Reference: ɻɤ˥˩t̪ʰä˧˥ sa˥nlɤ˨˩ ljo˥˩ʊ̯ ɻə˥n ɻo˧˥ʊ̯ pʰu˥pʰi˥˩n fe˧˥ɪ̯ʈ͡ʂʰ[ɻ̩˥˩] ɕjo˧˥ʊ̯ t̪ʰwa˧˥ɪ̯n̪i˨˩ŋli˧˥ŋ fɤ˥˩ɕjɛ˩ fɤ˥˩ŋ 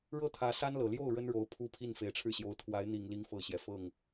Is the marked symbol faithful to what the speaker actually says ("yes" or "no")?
yes